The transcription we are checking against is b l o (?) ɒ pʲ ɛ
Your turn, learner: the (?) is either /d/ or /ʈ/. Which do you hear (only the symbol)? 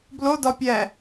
d